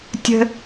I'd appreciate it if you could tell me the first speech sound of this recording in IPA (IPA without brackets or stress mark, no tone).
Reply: tʲ